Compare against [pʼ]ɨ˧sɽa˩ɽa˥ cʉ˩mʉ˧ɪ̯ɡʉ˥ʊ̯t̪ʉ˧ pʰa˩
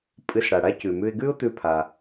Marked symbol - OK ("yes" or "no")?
yes